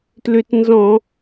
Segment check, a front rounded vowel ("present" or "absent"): present